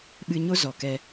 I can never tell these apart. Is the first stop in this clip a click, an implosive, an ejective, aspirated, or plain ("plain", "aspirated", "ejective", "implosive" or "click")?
implosive